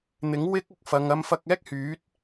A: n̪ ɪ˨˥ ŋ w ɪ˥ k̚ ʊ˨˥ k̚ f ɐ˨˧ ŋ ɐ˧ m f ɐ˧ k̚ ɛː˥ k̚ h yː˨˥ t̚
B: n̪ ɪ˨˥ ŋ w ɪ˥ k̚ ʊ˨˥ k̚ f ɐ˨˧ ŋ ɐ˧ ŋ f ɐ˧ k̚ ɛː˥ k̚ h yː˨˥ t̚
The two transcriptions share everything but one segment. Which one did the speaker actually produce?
A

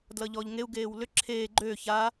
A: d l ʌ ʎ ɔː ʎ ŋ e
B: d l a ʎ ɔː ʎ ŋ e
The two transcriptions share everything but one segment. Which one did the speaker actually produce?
A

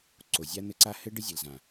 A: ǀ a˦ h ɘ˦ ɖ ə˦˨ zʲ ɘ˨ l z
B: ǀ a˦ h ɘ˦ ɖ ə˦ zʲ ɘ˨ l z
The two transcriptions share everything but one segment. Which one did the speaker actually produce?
B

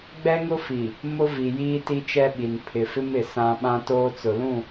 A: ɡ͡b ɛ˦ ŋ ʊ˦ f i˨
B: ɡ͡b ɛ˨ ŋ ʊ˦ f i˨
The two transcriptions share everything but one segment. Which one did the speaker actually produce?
A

